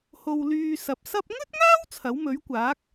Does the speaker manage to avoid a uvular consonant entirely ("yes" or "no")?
yes